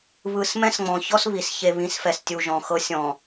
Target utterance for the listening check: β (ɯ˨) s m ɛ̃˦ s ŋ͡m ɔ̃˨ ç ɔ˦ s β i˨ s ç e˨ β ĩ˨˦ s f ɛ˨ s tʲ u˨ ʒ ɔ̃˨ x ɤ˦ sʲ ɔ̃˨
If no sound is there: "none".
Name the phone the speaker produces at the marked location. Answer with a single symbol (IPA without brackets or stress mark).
ɯ˨